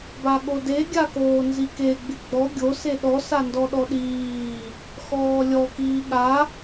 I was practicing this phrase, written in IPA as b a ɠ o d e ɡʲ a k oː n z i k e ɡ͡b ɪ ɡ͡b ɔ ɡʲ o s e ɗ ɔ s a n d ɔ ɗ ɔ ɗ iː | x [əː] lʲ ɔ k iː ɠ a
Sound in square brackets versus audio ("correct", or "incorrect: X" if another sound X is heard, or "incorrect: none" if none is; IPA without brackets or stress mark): incorrect: ɔː